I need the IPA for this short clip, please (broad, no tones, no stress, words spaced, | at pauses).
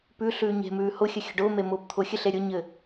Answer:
pʉ ɬʉːɲe̤mʉː hʊxʲə xʲə̤ɖʊːme mʊːpt̪ʰʊxʲɘɬ eɾʲʊɲɘ